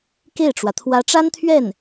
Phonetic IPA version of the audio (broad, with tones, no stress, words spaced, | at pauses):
ke˥˩ɪ̯ʈ͡ʂwä˩ t̪ʰwä˧˥ʈ͡ʂa˥nt̪ʰɥɛ˥˩n